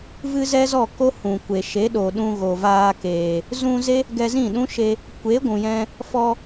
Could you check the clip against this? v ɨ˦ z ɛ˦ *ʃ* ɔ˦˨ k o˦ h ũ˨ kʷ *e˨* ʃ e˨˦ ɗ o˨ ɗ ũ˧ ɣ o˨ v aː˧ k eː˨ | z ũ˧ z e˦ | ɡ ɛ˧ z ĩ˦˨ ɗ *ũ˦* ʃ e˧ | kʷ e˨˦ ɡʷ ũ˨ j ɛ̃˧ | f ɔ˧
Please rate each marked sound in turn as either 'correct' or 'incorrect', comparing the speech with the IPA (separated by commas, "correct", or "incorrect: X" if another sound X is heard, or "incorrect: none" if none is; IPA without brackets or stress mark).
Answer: incorrect: z, correct, correct